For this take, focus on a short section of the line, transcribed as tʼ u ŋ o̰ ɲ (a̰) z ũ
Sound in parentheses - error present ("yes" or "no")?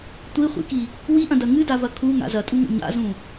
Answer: no